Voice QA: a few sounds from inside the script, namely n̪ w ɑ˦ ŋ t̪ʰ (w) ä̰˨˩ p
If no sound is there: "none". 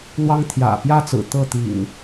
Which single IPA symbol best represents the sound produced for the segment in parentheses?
j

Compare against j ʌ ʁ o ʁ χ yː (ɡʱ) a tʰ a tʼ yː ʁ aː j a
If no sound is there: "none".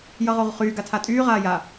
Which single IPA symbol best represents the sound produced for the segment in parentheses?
ɡ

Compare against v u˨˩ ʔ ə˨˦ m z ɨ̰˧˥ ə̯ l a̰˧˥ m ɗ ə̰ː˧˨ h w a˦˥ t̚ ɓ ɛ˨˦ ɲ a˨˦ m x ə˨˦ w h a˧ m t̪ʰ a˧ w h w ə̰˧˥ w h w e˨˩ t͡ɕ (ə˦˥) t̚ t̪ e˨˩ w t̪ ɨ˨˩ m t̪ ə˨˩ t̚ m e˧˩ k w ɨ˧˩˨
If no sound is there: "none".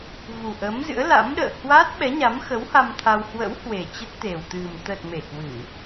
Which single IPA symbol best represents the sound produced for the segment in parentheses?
ə˦˥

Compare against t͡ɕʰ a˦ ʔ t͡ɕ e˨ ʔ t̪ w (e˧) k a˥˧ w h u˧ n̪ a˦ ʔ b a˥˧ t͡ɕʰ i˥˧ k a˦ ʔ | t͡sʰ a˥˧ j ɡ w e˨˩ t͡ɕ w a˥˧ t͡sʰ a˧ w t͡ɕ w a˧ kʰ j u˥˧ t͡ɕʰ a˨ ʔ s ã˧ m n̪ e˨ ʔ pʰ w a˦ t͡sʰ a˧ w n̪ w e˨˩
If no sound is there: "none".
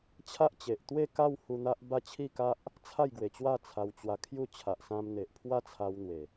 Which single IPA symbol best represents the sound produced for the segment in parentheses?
e˥˧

